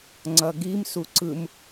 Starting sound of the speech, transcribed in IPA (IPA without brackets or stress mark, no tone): ŋ͡ǀ